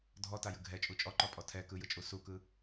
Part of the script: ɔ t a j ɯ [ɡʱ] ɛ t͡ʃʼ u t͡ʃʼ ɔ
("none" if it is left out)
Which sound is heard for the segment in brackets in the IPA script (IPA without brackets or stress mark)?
ɡʱ